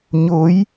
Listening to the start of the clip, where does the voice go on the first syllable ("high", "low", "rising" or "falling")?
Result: rising